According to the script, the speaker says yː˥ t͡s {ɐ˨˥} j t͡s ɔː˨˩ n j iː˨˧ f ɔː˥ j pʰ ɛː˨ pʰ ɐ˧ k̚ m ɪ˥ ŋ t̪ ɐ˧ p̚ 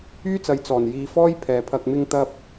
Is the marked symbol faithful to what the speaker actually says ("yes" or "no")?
yes